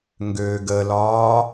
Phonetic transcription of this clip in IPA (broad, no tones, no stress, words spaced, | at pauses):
ŋɡøːɡəlɒː